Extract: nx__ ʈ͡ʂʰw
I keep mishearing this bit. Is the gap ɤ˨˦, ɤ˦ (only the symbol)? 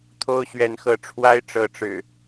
ɤ˨˦